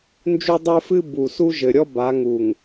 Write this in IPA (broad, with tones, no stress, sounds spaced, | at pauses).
n d͡ʒ u˦ dˤ ə˞˦ f ɨ˦ b u˨ s u˦ ʒ ɘ˨ ɾʲ ɔ˦ b a˨˦ ŋ u˨ ŋ